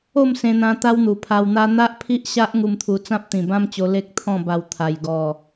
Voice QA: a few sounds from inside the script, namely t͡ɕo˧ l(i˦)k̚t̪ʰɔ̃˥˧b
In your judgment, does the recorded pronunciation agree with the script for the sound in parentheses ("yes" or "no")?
no